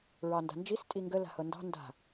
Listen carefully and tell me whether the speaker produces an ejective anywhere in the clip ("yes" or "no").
yes